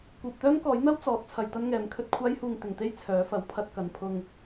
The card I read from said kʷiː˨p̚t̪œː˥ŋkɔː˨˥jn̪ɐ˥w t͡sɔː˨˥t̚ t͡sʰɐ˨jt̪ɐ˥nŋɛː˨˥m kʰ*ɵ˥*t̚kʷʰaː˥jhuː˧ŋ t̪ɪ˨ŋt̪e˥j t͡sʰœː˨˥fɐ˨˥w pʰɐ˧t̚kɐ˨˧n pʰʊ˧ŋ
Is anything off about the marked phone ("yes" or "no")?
yes